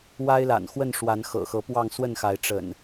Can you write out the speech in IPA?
w a˦ ɪ̯ l a̰˨˩ n x w ə˥˨ n ʂ w a˨˦ n x ɤ̰˨˩ x ɤ˨˦ p w ɑ˥˨ ŋ s w ə˥˨ n x a˨˦ ɪ̯ ʈ͡ʂ ə̰˨˩ n

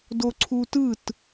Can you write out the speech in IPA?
d o ǀʰ u t ɯ t

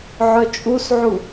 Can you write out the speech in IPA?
ʕ œ t͡ʃʼ u s ʕ u

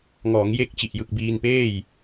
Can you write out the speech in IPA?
ŋ ɔː˩˦ ŋ j e˦˥ k̚ t͡ɕ i˨˩ ʔ j ɯ˨˩ k̚ b iː˧ n p eː˥˩ j

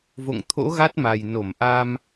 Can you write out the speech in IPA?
v o̰˧˨ ŋ t̪ʰ o̰˧˥ ɣ a˦˥ t̚ m a˨˩ j n o˧˩ m ʔ a˧ m

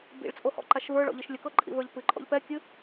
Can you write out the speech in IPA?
b ḭ ɭ t͡sʼ o h ɔ̰ ǃ a ʃ v ə˞ ɭ ɔ̰ ʎ ɨ ʃ lʲ ə k ɤ ǃʼ ḭ v ə˞ ʎ p ɨ ǃʼ ɔ̰ ʎ p ɛ kʲ ɨ

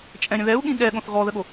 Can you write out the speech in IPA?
t͡ʃʼ ɛ̃ ɾʲ ə̃ ð ɛ u̯ ɠ ĩ ɠ ɛ ɠ õ θ ɣ ɔ ð ə ɠ o

